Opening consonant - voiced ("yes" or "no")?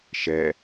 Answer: no